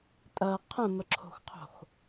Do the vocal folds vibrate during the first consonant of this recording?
no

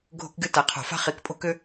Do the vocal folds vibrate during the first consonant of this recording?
yes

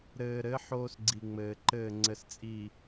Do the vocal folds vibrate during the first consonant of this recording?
yes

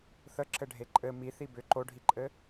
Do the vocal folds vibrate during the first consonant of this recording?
no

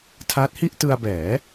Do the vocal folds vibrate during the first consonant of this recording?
no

